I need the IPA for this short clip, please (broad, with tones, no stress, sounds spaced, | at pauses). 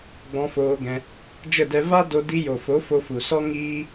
ɡ͡b ɔ̃˧ f oː˧ ɡ ɛ̃˧ | d͡ʒ ə˦˨ d ɛ˧ v a˦ d o˧ d i˧ j o˨ f o˨˦ f o˧ f u˨ s ɔ˦ ŋ iː˦